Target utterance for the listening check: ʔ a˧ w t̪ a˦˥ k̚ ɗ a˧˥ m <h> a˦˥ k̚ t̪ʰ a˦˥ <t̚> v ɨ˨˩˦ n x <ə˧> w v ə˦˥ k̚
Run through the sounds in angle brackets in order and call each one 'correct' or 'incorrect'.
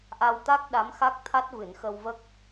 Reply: incorrect: x, correct, correct

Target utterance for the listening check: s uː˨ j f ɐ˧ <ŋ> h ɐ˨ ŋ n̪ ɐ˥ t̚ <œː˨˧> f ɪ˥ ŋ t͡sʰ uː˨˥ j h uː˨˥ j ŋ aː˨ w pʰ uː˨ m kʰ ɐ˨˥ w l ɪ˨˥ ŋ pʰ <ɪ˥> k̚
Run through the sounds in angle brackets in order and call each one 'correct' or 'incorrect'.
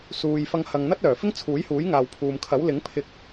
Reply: correct, incorrect: œː˨˩, incorrect: ɪ˧

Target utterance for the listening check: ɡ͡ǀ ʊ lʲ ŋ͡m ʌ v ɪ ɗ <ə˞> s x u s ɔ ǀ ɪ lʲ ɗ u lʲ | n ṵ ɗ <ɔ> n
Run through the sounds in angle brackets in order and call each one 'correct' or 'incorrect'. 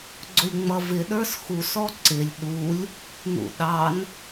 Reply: correct, incorrect: ɑ

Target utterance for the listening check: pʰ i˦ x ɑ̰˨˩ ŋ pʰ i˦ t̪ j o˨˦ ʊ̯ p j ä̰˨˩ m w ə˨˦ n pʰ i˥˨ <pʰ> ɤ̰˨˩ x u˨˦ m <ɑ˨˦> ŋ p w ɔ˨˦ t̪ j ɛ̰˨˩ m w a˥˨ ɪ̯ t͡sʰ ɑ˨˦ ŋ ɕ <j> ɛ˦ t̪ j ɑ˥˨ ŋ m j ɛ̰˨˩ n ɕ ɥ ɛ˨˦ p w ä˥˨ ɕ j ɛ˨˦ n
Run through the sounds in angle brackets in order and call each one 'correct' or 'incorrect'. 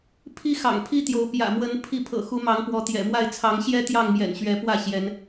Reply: correct, correct, correct

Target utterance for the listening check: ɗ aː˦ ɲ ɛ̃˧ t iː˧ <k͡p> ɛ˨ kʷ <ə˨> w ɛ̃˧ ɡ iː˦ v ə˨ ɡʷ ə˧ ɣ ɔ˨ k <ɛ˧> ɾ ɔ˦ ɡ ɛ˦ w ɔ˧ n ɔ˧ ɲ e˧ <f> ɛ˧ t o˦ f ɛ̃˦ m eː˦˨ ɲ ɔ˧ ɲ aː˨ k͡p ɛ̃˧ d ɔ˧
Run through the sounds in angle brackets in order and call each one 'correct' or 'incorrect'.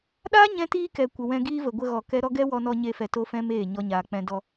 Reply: incorrect: k, correct, incorrect: ɛ˦, correct

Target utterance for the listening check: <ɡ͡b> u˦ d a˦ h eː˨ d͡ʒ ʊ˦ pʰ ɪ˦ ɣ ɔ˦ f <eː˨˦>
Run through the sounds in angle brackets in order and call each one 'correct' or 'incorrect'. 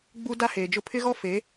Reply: correct, correct

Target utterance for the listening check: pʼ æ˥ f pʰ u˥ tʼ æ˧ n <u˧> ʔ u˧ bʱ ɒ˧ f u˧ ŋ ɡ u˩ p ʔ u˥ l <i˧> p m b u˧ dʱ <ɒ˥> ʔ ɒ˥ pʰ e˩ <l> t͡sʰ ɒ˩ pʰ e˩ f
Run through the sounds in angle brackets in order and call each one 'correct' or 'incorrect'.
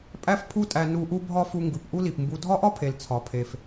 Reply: correct, incorrect: i˩, correct, correct

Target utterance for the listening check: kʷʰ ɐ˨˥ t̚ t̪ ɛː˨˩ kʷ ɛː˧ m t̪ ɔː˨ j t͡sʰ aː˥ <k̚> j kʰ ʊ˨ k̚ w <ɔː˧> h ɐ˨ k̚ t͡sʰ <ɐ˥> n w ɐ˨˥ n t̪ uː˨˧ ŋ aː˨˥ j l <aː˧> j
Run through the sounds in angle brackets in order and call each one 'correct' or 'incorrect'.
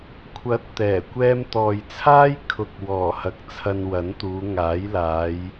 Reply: incorrect: none, incorrect: ɔː˨˩, incorrect: ɐ˧, incorrect: aː˨˧

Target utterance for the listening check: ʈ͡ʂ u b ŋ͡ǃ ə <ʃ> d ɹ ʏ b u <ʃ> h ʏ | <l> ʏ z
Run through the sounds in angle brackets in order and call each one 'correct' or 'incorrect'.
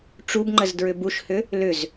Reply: incorrect: z, correct, correct

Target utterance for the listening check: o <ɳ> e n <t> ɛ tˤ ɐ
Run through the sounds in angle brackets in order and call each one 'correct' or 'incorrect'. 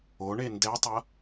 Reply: correct, incorrect: d

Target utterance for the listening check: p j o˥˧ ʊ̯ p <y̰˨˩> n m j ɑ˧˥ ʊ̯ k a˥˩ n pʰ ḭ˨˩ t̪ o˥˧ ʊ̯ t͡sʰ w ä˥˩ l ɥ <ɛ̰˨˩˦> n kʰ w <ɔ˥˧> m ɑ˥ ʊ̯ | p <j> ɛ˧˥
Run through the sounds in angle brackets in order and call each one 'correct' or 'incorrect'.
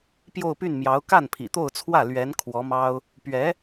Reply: incorrect: y˥˩, incorrect: ɛ˧˥, incorrect: ɔ˧˥, incorrect: ɥ

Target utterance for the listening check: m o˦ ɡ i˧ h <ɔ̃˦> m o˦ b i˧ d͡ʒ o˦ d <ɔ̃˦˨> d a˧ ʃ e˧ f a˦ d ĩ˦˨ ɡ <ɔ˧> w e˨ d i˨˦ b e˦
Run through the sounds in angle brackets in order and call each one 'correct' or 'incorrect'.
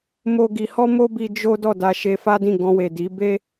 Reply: incorrect: ɔ˦, incorrect: ɔ˦˨, incorrect: ɔ̃˧

